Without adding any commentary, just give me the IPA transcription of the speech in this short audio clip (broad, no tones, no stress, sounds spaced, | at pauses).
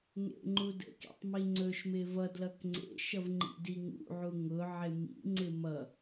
ŋ ḛ ŋ͡ǃ u d ə̰ k ḭ tˤ m i ŋ͡ǀ ɵ ʃ m ɪ v ʌ d l ʌ k ŋ͡ǀ ḛ ʃ ʌ v ŋ͡ǃ ḭ d i ŋ ṵ ʕ u ŋ ʊ ʕ ɪ m ḭ ŋ͡ǀ ɪ m ʌ